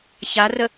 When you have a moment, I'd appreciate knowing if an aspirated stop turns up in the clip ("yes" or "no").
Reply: no